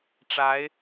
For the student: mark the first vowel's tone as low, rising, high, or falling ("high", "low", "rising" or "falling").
rising